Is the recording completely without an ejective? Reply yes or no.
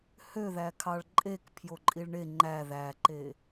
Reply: no